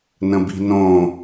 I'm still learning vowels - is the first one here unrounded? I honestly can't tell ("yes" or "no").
yes